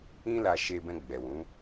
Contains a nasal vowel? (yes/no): yes